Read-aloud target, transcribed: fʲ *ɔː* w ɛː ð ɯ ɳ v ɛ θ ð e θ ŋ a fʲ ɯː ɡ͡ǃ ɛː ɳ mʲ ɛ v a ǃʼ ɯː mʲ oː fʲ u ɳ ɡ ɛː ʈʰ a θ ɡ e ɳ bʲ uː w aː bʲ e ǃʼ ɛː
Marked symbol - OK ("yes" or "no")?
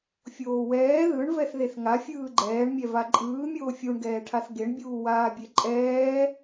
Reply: no